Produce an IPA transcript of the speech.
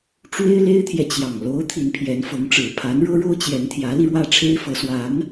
ʈ͡ʂ w e˥ ɪ̯ l e˥ ɪ̯ t̪ʰ j ɛ˨ t͡ɕ j ɑ˨˩ ŋ l o˧˥ ʊ̯ t̪ʰ i˧˥ n pʰ j ɛ˧˥ n f ɤ˧˥ ŋ ʈ͡ʂ ɻ̩˨˩ pʰ a˧˥ n ɻ ɤ˥ ɻ o˥ ʊ̯ t͡ɕ j ɛ˧˥ n t̪ʰ j ä˧˥ l i˧ ɻ w ä˥˩ ʈ͡ʂʰ e˥ ɪ̯ f ɤ˧˥ s w a˧˥ n

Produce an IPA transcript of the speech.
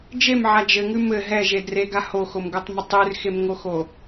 d͡ʒ e m ʕ a d͡ʒ ɘ ŋ ʉ m ɘ ɦ ɛ ʒ e d r e ɡ a h o x o m ɡ o tˤ m ə tˤ ʉ r x e m ŋ o x o

